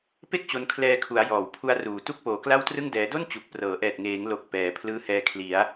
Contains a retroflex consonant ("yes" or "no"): no